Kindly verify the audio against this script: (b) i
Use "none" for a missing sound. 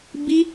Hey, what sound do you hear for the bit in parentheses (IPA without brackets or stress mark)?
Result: b